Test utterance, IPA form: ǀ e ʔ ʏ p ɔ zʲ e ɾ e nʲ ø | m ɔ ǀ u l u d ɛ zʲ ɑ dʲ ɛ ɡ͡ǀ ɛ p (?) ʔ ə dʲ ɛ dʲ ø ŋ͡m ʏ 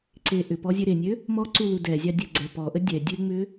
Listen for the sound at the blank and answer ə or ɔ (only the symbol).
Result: ɔ